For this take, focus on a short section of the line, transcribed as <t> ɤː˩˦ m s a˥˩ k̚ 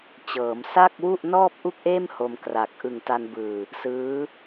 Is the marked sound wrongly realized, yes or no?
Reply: yes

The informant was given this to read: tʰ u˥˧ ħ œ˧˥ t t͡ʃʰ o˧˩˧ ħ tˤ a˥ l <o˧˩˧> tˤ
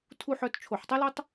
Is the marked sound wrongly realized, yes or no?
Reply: yes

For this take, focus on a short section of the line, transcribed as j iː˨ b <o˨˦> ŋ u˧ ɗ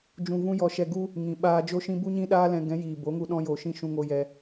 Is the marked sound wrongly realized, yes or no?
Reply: no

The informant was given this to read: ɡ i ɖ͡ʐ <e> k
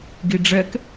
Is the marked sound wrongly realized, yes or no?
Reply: yes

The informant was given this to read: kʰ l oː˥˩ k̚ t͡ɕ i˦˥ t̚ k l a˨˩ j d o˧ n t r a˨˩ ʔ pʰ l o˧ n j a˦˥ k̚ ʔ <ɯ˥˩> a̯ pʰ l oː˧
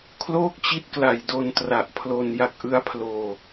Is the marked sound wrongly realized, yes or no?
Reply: yes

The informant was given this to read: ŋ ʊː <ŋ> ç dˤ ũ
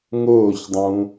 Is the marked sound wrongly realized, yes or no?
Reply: yes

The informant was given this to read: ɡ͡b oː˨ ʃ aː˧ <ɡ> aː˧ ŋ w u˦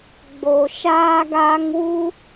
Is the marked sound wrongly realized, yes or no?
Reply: no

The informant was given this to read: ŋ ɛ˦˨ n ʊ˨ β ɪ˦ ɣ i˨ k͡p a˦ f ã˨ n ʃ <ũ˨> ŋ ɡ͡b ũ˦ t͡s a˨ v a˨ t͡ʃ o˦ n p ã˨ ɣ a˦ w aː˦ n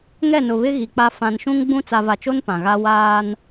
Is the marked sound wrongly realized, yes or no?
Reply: yes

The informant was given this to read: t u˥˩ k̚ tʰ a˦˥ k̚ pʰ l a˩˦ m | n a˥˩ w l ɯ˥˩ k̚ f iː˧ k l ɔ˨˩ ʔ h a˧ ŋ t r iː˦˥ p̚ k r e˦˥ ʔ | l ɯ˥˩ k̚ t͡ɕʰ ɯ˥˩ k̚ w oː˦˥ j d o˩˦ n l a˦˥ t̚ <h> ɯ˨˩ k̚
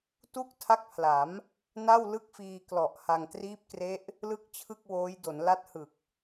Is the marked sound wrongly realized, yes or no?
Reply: no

